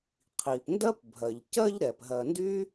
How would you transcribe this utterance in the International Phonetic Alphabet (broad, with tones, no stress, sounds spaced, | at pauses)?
qʰ i˩ p n d ɜ˥ p bʱ ɜ˩ ʎ c ɜ˦ ʎ ɾ ɛ˩ p ɦ ɜ˨ n d y˥